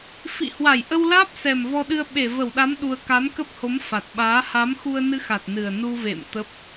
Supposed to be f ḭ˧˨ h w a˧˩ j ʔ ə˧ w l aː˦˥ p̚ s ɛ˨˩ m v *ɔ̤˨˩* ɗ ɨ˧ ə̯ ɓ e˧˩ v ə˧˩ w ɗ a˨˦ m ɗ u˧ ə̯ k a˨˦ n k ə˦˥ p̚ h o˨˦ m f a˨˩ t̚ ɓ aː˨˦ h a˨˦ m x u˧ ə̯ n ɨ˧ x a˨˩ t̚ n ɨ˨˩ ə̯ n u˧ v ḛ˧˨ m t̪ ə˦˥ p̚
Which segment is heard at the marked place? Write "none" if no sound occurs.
ɔ˧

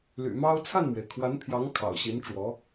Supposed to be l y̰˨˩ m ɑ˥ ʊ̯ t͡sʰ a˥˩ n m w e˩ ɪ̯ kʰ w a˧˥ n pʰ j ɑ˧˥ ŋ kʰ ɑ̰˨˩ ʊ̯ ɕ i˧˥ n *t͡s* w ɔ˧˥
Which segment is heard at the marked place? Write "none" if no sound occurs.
ʈ͡ʂ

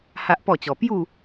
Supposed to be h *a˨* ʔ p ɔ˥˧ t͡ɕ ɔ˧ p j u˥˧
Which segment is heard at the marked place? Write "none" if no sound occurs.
a˦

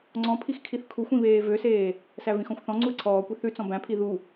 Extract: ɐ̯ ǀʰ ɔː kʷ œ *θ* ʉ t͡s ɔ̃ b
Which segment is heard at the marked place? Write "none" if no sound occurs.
θ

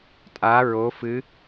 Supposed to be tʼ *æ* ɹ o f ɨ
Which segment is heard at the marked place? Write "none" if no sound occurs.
a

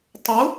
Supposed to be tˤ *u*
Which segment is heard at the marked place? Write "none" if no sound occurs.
u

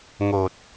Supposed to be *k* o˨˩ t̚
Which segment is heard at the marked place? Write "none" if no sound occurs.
ŋ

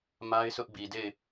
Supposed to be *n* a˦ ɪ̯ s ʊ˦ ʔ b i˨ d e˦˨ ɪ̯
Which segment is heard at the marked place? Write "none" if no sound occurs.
m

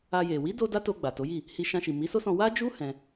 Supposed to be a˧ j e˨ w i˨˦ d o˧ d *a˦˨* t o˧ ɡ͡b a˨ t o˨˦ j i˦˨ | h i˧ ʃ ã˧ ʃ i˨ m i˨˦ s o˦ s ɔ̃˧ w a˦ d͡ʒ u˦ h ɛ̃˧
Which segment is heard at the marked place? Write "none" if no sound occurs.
a˦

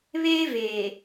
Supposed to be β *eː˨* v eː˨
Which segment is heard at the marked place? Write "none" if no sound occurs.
eː˦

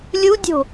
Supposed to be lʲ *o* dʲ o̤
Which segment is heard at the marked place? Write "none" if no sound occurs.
u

